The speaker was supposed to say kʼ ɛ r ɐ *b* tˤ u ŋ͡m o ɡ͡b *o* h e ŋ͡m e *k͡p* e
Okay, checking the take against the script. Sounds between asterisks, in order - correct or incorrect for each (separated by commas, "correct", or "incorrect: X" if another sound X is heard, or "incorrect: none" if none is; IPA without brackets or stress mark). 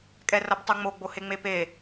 correct, correct, incorrect: p